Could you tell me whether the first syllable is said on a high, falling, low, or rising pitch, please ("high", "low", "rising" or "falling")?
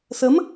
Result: rising